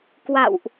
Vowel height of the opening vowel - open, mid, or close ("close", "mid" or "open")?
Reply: open